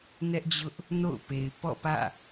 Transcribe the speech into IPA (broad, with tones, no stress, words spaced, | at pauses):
nɛ˦ʔd͡ʑʊ˦ʔ | no̰˦˨ʊ̯pe˨ɪ̯ pɔ̰˦˨pä̰˦˨